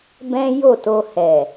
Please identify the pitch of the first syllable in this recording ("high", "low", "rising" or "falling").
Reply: high